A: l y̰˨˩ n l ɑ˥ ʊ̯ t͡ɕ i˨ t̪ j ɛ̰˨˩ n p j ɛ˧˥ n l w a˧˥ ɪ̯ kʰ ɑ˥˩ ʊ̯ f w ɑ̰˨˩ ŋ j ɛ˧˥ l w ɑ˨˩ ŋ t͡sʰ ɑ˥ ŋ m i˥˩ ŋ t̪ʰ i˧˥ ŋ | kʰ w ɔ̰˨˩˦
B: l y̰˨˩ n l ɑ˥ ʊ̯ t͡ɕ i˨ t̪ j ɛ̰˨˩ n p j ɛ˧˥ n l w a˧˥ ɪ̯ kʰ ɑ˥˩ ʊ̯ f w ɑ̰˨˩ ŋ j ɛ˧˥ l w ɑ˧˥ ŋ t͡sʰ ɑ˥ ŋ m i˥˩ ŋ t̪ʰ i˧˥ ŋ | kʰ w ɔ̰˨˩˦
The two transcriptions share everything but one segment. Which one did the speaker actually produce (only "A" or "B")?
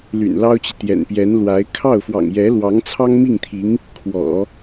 B